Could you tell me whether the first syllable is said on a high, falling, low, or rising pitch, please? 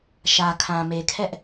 low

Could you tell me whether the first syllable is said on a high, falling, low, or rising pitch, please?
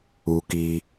low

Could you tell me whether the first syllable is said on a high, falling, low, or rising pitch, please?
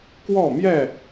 falling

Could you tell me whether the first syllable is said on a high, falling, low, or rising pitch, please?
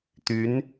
rising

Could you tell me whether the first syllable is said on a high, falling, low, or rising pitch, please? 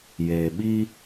low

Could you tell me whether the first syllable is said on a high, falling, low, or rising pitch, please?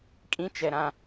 high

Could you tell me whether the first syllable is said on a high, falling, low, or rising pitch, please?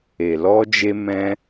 low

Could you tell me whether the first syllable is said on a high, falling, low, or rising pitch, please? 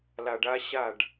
low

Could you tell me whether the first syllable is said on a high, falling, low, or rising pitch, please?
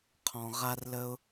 low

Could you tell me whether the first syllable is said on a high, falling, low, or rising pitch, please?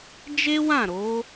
high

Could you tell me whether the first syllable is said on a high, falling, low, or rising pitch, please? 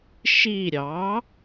falling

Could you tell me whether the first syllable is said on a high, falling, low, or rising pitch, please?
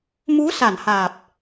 rising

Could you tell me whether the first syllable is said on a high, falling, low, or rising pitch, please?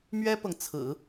high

